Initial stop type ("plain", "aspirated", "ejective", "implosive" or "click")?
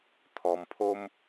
aspirated